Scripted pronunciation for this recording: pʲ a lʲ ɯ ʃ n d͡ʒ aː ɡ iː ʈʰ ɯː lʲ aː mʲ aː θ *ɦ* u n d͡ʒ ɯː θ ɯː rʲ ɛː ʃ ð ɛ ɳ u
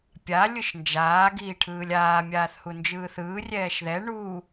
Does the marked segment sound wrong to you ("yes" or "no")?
yes